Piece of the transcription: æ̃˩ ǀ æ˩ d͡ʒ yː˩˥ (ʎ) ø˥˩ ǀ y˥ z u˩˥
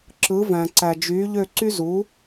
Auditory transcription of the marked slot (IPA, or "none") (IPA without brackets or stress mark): ʎ